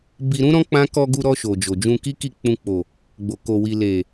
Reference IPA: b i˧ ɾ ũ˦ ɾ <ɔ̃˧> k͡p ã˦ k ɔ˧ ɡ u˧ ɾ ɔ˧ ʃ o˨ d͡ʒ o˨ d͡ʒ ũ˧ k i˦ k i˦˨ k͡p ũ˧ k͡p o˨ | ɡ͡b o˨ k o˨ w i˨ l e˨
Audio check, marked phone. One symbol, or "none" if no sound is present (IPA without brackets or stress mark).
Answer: ɔ̃˦